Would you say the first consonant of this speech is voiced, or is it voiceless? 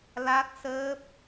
voiced